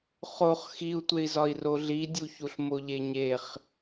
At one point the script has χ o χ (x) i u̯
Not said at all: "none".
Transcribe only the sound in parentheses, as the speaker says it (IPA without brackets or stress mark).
x